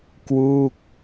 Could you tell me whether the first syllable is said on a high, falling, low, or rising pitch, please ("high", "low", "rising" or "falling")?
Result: falling